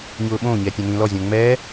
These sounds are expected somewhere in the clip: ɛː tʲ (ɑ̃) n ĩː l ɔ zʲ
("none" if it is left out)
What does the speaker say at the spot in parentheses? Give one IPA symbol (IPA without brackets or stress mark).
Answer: ã